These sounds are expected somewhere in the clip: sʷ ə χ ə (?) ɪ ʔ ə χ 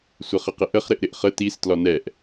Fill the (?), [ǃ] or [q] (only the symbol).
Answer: q